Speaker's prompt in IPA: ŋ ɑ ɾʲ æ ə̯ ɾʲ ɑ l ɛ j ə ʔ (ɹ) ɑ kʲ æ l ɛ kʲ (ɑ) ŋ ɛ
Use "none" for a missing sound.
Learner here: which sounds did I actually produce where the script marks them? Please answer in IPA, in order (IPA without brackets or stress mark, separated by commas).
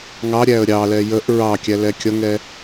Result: ɹ, ʌ